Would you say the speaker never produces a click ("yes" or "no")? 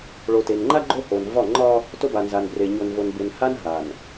no